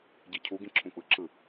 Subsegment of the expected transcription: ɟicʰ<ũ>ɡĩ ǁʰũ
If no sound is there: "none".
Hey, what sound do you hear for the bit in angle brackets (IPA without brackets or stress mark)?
u